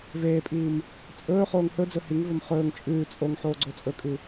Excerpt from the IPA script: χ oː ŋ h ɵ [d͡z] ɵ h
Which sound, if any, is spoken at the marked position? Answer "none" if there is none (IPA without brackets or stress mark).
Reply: d͡z